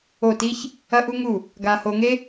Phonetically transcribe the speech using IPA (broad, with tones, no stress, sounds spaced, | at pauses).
o˦˨ t i˦ ç | ɐ˦ ʔ u˦ ŋ u˦˨ | ɡ a˧ h o˧ ŋ e˦